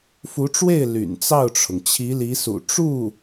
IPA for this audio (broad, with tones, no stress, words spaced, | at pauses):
fu˧˥ʈ͡ʂwe˥˩ɪ̯ ly̰˨˩nt͡sɑ˥˩ʊ̯ʈ͡ʂʰʊ˩ŋ t͡ɕʰi˧˥li˧˥sṵ˨˩ ʈ͡ʂu˥˩